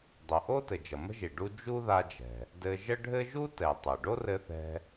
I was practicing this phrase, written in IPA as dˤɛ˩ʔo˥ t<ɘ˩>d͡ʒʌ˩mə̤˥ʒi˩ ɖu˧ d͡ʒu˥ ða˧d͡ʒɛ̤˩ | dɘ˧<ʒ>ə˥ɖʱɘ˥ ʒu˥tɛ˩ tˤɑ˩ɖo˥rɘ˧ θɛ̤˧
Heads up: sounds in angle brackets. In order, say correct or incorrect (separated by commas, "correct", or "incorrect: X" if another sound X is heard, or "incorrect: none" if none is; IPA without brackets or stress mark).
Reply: correct, correct